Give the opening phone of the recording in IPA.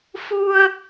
f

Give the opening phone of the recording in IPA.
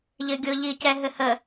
ʎ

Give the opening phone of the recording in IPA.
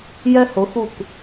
j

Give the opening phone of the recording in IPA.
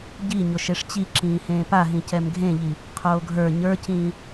ɟ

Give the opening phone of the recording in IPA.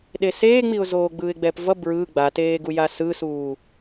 ɗ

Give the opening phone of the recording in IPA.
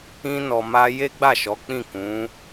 ĩ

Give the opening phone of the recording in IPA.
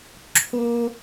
ǁʰ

